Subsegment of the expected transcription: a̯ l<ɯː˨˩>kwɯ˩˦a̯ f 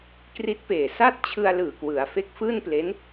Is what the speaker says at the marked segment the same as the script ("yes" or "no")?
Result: yes